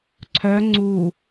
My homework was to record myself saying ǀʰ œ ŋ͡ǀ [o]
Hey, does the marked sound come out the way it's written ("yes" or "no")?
no